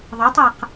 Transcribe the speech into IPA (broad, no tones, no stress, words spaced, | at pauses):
ðˤʌtˤaq